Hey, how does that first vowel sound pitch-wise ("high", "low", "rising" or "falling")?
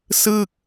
falling